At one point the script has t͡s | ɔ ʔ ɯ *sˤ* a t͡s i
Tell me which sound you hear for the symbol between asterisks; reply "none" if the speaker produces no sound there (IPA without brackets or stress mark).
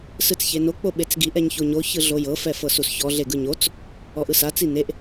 s